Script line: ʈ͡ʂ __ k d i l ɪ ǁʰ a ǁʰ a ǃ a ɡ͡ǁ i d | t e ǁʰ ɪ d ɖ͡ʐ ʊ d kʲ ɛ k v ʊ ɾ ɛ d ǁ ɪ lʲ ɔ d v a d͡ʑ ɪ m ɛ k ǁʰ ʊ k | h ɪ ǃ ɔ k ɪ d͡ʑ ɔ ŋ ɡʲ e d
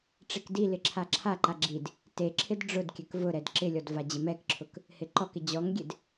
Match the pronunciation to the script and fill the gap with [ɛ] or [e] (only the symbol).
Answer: e